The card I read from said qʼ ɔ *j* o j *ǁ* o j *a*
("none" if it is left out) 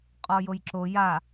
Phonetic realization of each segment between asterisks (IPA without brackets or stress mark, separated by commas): j, ǁ, a